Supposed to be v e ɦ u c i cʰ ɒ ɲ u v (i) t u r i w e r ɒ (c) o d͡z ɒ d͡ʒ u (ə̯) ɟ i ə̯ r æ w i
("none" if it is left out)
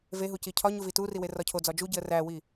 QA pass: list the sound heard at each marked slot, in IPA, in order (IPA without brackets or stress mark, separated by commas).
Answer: i, cʰ, none